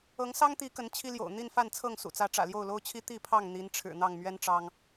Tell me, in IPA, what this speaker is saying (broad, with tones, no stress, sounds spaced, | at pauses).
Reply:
ɤ˨˦ ŋ s ɑ˦ ŋ t̪ i˨˦ k ə˨˦ n t͡ɕʰ i˦ l j o̰˨˩ ʊ̯ n̪ i˥˨ n f a˥˨ n t͡sʰ ɤ˥˨ ŋ s ṵ˨˩ t͡s ä˨˦ ʈ͡ʂ ä̰˨˩ l j o˥˨ ʊ̯ l o˦ ʊ̯ t͡ɕʰ i˦ t̪ i˥˨ pʰ ɑ˥˨ ŋ n̪ i˨˦ n ʈ͡ʂʰ ɻ̩˨˩ n̪ ɑ˥˨ ŋ m ɥ ɛ˦ n ʈ͡ʂ ɑ˦ ŋ